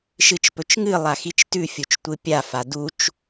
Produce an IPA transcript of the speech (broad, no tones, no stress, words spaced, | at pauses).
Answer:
ʃɨt͡ʃpɵt͡ʃŋɨ lˠaxit͡ʃtʉ fʲut͡ʃtʷɨpʲa fadut͡ʃ